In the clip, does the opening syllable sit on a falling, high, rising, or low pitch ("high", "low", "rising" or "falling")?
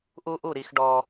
high